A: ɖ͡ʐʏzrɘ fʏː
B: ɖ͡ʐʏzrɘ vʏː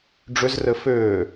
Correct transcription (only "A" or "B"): A